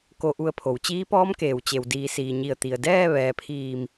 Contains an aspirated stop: yes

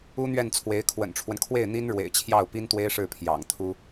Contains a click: no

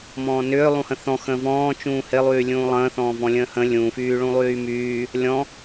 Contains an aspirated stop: no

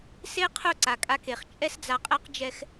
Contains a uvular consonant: yes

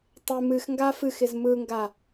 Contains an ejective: no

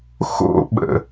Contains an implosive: yes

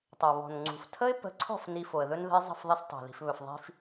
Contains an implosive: no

